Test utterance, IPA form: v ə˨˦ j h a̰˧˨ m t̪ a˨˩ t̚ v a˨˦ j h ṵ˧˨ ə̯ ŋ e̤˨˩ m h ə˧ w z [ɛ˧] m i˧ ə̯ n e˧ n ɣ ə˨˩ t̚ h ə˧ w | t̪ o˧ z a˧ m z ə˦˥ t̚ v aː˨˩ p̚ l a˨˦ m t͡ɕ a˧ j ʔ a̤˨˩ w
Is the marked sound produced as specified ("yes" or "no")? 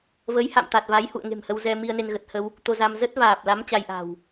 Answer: yes